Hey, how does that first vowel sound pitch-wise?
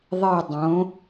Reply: falling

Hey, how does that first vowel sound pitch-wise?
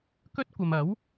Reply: high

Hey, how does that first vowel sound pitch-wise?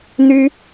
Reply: high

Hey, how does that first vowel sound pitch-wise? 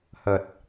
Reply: low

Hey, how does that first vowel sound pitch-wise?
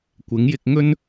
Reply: rising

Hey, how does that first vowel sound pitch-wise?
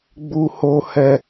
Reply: high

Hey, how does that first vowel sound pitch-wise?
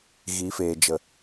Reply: rising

